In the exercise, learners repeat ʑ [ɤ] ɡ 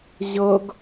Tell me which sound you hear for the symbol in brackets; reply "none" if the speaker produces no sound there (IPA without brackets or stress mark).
ɤ